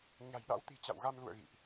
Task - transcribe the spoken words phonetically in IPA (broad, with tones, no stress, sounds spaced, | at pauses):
ɲ a̤˨˩ j ɗ a̰˧˥ w t̪ i̤˨˩ t͡ɕ a̰˧˨ w ɣ a˧ m l ṵ˧˨ ə̯ ɣ ḭ˧˨ ʔ